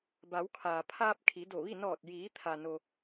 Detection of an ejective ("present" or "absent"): absent